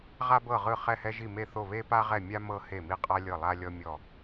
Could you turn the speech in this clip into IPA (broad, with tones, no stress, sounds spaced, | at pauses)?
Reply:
ʁ a˦ b ɤ˦˨ ʁ ɯ˦˨ χ ɛ˦˨ h ɛ˦ ʒ i˦˨ m e˦˨ θ o˦˨ β e˦ p a˦ ʁ ɛ˦˨ mʲ a˦ m ɤ˦ h e˦˨ m i˦ qʼ a˦ lʲ ɤ˦˨ lˠ a˦ lʲ ɔ˦ mʲ ɔ˦˨